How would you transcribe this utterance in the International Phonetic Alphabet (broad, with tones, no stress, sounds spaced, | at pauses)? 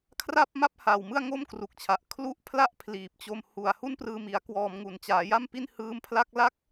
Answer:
kʰ r a˥˩ p̚ m a˥˩ p̚ h aː˨˩ w m ɯ˥˩ a̯ ŋ o˥˩ m k r u˨˩ k̚ t͡ɕʰ a˨˩ ʔ kʰ l u˦˥ ʔ pʰ l a˥˩ ʔ pʰ l iː˨˩ p̚ t͡ɕ o˧ m h u˨˩ a̯ h u˥˩ n p r ɯː˧ m i˩˦ a̯ k w ɔː˧ m ŋ u˨˩ n t͡ɕ aː˩˦ j a˥˩ m p i˥˩ n h ɯː˦˥ m pʰ l a˥˩ k̚ l a˦˥ k̚